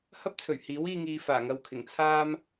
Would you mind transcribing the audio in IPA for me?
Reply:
h ɐ˥ p̚ t͡sʰ ɵ˨˩ ɥ h iː˨˥ w iː˧ ŋ iː˨ f aː˨˩ ŋ ɐ˧ w kʰ ɪ˨˩ ŋ t͡sʰ aː˥ m

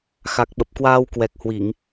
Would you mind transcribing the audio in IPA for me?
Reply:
x a˨˩ k̚ ɓ ə˨˩ p̚ k w aː˧ w k w ɛ˨˩ k̚ h w i˧˩˨ ŋ

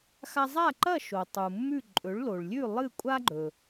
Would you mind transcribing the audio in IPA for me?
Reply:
x a˧ zˤ a˥˩ ǃ ɐ˥˩ ʃ o˩ tˤ u˩ mː ʉ˥˩ ǃʼ ɵ˩˥ ɭ l o˩ ɭ lʲ ʉ˥˩ lˠ ɨ˥˩ kʷʼ a˥ ɡ͡ǃ ɵ˩

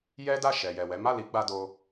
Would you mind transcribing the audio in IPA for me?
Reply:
j ɛ˦ d a˦˨ ʃ ɛ˨ j ɛ˨ w ɛ˨˦ m a˦˨ l i˨˦ ɡ͡b a˧ d o˧

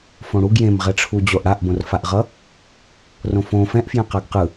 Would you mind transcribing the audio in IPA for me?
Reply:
f õ ɽ u ɡ j ẽ m ʁ ɛ ʈ͡ʂʰ u d͡ʑ o ʔ ɽ a ʔ b õ r f a ʔ ʁ ʌ | r õ f õ f ɛ̃ ʔ f j ɛ̃ q a ɡ q ɯ

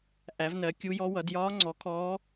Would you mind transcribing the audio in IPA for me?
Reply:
ʔ æ˩˥ v n ɜ˩˥ kʲ u˧˥ j ɔ˧˥ w ʌ˩˥ d j ɒː˧˥ ŋ͡ǀ ɔ˩˥ kʰ ɔː˧˥

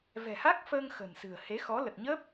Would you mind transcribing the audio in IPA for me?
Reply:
v ɛ̤˨˩ h a˦˥ k̚ f əː˧ ŋ x ə̤˨˩ n s ɨ̤˨˩ ə̯ h e˨˦ x ɔ˨˦ l ə˨˩ t̚ ɲ əː˦˥ p̚

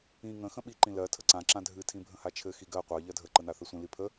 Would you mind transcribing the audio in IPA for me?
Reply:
ĩ ŋ ə̃ x ə̃ ɓ i ǃ ĩ l ɜ tʰ ə ǀ ã ǁ ã dʱ ɨ tʰ ĩ bʱ ə̃ h a t͡ʃʰ ɘ x i ɡ ɜ qʷ ɜ ʎ ɜ dʱ ə ǃ ə n a θ ɘ sʷ ĩ l i pʰ ə

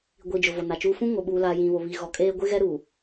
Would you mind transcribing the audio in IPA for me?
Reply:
ɡʷ i˨ d͡ʒ ʊ˨ v o˨ n a˨ t͡ʃ uː˦ f ũ˦ ŋ o˨ ɓ uː˨ l a˨ j ĩ˨ β o˨ β i˨ ɣ ɔ˨ kʼ eː˦ ɡʷ ɪ˦ ɣ ɛ˦ ɾ u˨

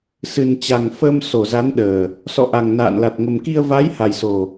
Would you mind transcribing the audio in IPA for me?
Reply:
s ɨ˨˩ n t͡ɕ a˨˩ ŋ f ə˧ m s o˧˩ z a˨˦ n ɗ əː˨˩ | s ɔ̰˧˨ ʔ a˨˩ ŋ n a̰ː˧˨ n l a˨˩ t̚ ŋ ə˨˩ m k i˧ ə̯ v a˨˦ j h a˨˩ j s o˨˩

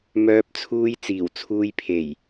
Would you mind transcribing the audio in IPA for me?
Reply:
m œː˧ p̚ t͡sʰ uː˧ j t͡s iː˨˩ w t͡sʰ uː˧ j pʰ e˨˩ j

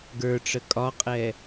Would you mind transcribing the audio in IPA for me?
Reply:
ɡ ə˞ ʈ͡ʂ ə kʼ ɒ qʼ ɛ

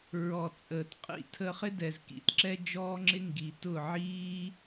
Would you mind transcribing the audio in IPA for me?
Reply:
ɹ ɔ˨ t͡sʼ əː˨ t qʼ ḭ˧ tʰ əː˧ χ ɪ˦ d ɛ˨ z k ḭ˨ t ǁ ɛ˦ d͡ʒ ɔː˦ ŋ͡ǁ ɪ˦ ŋ ɡ i˨ t ʊ˦˨ ʕ iː˦

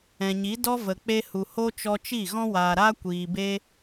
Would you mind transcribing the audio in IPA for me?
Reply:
ɛ̃˨ ɲ i˨˦ d ɔ˦ v ə˨ k͡p e˧ h u˨ h o˧ t͡ʃ ɔ˧ t͡ʃ i˦˨ ɣ ɔ̃˧ w aː˨ ɾ aː˧ kʷ iː˧ b e˦

